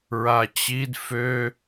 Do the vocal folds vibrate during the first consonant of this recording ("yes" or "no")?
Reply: yes